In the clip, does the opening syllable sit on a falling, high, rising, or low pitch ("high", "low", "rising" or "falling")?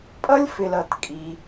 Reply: high